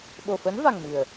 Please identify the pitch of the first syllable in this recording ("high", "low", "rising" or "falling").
low